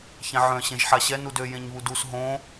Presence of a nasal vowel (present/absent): present